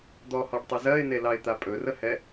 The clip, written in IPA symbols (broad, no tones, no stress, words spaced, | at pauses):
d̪ɔhɔɖtˤə zɜɪ̯nelɑɪ̯t̪a pʼɵrəhɛ